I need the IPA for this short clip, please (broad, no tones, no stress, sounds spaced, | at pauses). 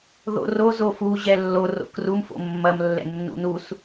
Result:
ð o̰ r o z o f u ʑ ɛ lː o r o̰ k r u m f o̰ mː ɐ m lː ɛ̰ nː ṵ n u s